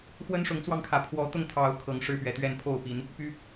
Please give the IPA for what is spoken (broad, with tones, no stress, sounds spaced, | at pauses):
x w ə˦ n ʂ ʊ˨˦ ŋ t͡s w ɑ˧ ŋ kʰ ä˨˩ pʰ w ɔ˨˦ t̪ ʊ˧ ŋ t̪ʰ ɑ˨˦ ʊ̯ kʰ ɤ˨˩ ŋ ʂ ɻ̩˦ p ɥ ɛ˨˩ t̪ ɥ ɛ˥˨ n pʰ o˥˨ ʊ̯ p i˨˦ n | p y˦